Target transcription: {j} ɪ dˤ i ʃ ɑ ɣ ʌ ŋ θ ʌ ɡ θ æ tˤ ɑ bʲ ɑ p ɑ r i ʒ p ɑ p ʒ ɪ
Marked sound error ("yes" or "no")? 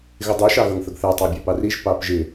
yes